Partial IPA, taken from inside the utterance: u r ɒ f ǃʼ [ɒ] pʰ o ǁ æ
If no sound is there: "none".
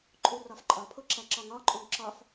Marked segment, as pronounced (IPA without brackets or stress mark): ɒ